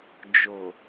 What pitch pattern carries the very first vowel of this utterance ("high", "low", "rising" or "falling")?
low